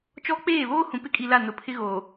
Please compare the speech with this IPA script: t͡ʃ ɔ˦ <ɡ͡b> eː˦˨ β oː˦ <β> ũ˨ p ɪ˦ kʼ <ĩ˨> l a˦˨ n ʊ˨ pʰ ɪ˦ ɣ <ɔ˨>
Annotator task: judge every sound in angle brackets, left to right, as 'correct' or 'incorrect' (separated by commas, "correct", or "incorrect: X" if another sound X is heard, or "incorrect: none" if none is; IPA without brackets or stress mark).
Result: incorrect: k͡p, incorrect: h, incorrect: i˨, incorrect: o˨